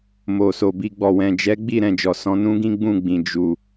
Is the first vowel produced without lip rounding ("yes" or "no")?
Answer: no